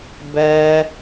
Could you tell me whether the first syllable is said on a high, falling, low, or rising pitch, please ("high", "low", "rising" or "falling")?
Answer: high